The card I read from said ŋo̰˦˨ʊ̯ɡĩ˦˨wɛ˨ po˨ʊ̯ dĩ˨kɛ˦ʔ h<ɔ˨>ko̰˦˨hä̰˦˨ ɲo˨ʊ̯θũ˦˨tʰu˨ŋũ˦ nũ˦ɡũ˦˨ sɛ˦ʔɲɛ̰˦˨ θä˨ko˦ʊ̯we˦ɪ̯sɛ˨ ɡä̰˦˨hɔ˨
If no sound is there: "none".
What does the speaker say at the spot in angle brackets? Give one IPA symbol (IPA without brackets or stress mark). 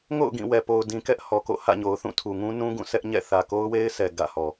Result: ɔ˨